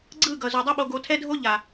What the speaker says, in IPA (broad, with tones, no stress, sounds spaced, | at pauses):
ɡ͡ǀ ɯ˦˨ ɡ ʌ˨ z u˨ dˤ e˦ ɓ o˧ ɡ o˧ tʰ ɛ˦ dʱ o˦ ʎ a˨